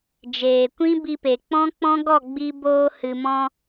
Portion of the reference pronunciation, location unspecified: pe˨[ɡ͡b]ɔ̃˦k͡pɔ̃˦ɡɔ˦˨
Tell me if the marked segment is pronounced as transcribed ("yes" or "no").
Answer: no